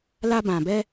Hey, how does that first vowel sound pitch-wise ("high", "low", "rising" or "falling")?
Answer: high